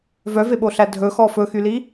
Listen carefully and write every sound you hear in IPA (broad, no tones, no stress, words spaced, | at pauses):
vœveɓoɬæ dʱɵxɔ fɵxyli